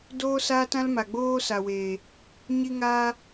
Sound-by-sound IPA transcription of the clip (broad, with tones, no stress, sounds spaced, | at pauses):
d oː˦ s aː˦ t ã˦ l m a˨ ɡ͡b oː˦ s a˨ w eː˨ | ɲ i˦ ŋ aː˦